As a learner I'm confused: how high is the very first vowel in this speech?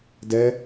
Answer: mid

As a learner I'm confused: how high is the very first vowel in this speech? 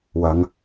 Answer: low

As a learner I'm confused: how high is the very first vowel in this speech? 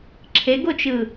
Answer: mid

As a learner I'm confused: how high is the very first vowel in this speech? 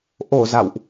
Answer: mid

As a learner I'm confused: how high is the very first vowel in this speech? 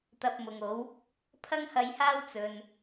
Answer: low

